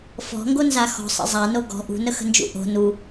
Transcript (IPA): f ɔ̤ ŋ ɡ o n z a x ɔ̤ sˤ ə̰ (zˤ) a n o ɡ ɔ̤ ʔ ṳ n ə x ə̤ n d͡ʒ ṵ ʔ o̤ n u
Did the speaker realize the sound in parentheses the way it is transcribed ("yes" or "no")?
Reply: yes